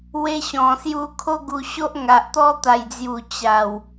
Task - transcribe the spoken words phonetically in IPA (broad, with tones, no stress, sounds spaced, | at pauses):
w e˧ ɕ ɔ̃˨˩ s j u˧ kʰ o˦ ɡ u˧ ɕ o˦ ʔ ŋ a˨ ʔ t̪ ɔ˦ t̪ a˨˩ j d͡z j u˨˩ t͡ɕ a˨˩ w